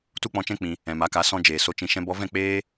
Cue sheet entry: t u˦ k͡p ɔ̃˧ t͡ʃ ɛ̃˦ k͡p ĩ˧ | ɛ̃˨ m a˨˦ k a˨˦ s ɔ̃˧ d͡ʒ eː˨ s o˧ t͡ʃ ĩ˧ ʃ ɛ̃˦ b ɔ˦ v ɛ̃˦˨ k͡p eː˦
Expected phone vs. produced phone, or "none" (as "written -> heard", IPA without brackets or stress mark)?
none